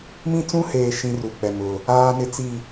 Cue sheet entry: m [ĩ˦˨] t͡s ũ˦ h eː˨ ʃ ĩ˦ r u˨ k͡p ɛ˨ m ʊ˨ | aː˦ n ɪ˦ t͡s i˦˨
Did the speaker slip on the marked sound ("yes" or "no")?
yes